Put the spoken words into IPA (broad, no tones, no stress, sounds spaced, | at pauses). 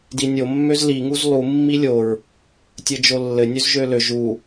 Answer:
d i nʲ o mː ø z l i ŋ u z lˠ u mː i lʲ o ɹ | tʲ ɘ d͡ʒ o lː ɘ nʲ ʉ z ʒ ø l ø ʒ u